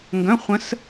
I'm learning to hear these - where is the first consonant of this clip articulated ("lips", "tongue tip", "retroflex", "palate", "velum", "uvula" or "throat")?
velum